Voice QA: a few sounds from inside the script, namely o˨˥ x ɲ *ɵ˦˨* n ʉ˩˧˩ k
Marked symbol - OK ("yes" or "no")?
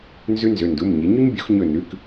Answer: yes